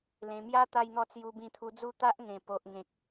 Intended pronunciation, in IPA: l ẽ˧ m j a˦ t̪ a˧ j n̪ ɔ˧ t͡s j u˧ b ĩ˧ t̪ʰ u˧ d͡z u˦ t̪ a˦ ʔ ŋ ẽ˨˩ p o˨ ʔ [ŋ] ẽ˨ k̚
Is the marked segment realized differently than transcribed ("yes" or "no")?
no